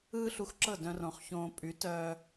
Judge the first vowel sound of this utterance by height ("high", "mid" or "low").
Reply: high